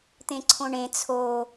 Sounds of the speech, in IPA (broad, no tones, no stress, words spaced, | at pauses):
t̪ẽǀʰõɳẽ t͡sʰo